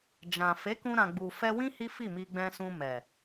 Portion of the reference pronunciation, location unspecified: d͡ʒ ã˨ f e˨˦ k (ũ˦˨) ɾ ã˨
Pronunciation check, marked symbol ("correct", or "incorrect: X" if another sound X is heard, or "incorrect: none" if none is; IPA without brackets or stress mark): incorrect: ũ˧